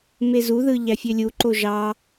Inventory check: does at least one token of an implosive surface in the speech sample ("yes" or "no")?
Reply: no